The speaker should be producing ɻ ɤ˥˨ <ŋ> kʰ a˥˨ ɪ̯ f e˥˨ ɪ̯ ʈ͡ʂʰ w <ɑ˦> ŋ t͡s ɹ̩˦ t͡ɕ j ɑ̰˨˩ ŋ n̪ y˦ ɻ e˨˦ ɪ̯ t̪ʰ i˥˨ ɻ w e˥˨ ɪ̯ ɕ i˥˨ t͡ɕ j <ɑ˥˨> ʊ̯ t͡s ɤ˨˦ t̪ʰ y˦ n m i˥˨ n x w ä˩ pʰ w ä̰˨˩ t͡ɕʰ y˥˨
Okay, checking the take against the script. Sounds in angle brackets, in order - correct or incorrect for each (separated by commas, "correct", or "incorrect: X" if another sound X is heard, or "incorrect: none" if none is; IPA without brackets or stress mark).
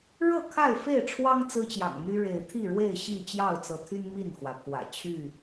incorrect: none, correct, correct